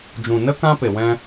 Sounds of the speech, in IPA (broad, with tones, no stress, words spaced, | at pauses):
d͡ʒũ˨nə˦ kã˦pe˨wɛ̃˧